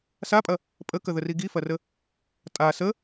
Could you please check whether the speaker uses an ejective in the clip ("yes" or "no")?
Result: yes